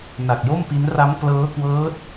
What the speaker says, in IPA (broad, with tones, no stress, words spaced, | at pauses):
na˨˩k̚jo˥˩mpi˦˥n ra˦˥mklɤː˦˥kwɤː˦˥t̚